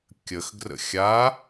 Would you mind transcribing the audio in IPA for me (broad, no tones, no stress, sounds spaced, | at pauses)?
kʲ ə x ɡ r ə̰ xʲ a